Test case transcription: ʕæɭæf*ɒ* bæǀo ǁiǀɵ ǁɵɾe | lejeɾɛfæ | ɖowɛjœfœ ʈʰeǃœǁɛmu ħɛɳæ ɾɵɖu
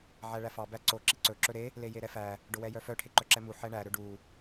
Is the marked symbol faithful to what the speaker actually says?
no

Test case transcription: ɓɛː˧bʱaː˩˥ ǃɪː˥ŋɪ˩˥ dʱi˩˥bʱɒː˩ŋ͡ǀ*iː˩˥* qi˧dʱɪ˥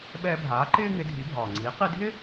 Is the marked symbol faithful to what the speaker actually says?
yes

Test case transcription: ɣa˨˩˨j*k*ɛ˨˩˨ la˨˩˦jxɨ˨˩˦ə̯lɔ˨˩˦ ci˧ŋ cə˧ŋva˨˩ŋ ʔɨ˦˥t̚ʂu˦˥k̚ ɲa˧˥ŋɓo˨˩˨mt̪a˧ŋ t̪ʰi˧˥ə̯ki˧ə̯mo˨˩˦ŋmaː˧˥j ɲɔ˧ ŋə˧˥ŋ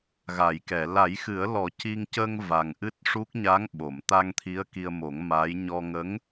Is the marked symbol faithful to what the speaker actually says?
yes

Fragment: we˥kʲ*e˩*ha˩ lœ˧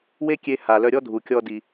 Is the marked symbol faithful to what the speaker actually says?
no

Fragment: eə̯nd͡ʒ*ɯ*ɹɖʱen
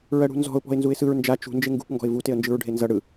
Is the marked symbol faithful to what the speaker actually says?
yes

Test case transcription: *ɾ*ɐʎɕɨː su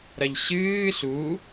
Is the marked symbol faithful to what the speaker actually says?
yes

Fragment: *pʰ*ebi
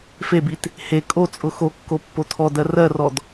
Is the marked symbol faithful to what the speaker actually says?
no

